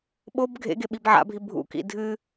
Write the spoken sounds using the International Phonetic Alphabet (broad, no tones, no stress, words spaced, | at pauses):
ɓob ɡʱḛɡe ɓibʕa̰bʱi bʱṵkḭ dʱɨ